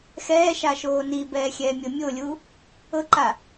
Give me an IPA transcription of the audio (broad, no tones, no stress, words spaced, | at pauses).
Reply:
xɛːʃaʃoː nibɛːxʲɛːmʲɤ mʲolʲu | ɤǃa